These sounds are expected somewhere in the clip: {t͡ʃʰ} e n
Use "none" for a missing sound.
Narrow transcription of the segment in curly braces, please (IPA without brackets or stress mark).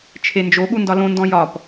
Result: t͡ʃʰ